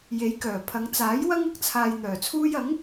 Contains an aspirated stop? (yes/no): yes